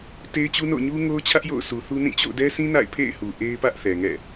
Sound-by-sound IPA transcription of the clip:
t e˦ ɪ̯ t͡ɕ u˦ n o̰˦˨ ʊ̯ ɲ u˦ ŋ o˦ ʊ̯ t͡ɕʰ ä˦ ʔ j o̰˦˨ ʊ̯ sʰ u˨ θ u˦ n ĩ˦˨ t͡ɕ o̰˦˨ ʊ̯ d ɛ˦ s ĩ˦ n a̰˦˨ ɪ̯ pʰ ḛ˦˨ ɪ̯ h u˨ ʔ e˦ ɪ̯ p ä˦ ʔ θ ɛ˨ ŋ ɛ̰˦˨

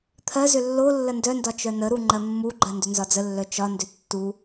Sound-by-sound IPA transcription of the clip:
t̪ʰ ɜ z ʏ lː o lː ə n d œ n d ɒ t͡ʃ œ n ə ɾ u ŋ͡ǃ ɜ mː u ɡ͡ǃ ɜ n d ʏ n z ɒ d͡z ə lː œ t͡ʃ ɒ n d ʏ tː u

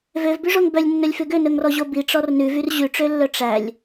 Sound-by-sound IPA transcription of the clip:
v ø v b y ʐ o ŋ b œ lʲ nː ɵ lʲ f ʉ ɡ ø n ɵ ŋ r ɔ ʑ o b i ʈ͡ʂ ɔ r n ʉ v y r ʑ ʉ ʈ͡ʂ ø lː œ ʈ͡ʂ æ lʲ

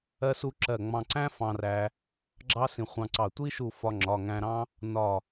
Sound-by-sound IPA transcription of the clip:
ɜ˧ s u˧ ǁ ɜ˧˩ ŋ͡m ɑ̃˧ ǀ æ̃˦˥ f ɑ̃˧ r æ˧ | ɡ͡ǁ ɑ˦˥ s ĩ˧˩ χʷ ɑ̃˧ ǀ ɑ˧˩ tʷ i˦˥ ʃ u˧˩ f ɒ˧ ŋ͡ǁ ɒ˩˧˩ ŋ æ̃˧ ɾ ɑ̃˦˥ | n ɒ˧˩

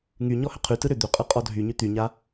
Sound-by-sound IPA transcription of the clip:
ŋ y ɲ ɔ h ʏ qʰ y t ɯ ɾ ʏ d̪ ʏ qʼ ɯ qʼ ɔ dʱ y ɲ y t̪ y ɲ a

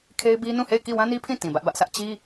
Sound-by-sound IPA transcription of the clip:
kʰ e˦ ɪ̯ b i˦ n ũ˦˨ h e˦˨ ɪ̯ k i˦˨ w ã˦ n i˦ pʰ ĩ˦˨ t ĩ˨ b ä˦ ʔ b ä˦ ʔ sʰ ä˦ ʔ t͡ɕ i˦

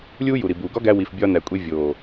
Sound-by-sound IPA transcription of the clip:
lʲ uː˦ j u˨ ɾ i˨ b uː˨ ɡ ɒ˦ ɡ æ˧ w i˨ f bʲ ɒː˧ n æ˨ kʷʼ e˧ vʲ oː˨

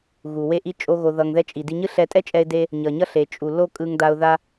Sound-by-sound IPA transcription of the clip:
ɣ u˩ w e˥ ʔ i˥ t͡ʃʼ o˥ ɣ o˧ ð ʌ˧ ŋ ð ɛ˥ t͡ʃʼ i˩ d i˧ ɲ ɯ˥ ɬ ɛ˧ tʼ ɛ˥ t͡ʃʼ ɛ˧ ɪ̯ d e˧ | ɲ ʌ˩ ɲ ʌ˥ ɬ e˩ t͡ʃʼ u˩ l o˥ kʼ ɯ˧ ŋ d a˧ ʊ̯ ð a˧

